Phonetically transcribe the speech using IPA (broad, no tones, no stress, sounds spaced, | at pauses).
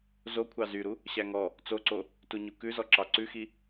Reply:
z o kʷʰ ɑ z y ɾ u | ɕ æ ŋ ɔ | t͡s o ǀ o | t u ɲ u k ʉ z ɔ ǁ ɑ ǀ ʉ x i